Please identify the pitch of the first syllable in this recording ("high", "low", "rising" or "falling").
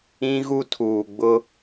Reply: high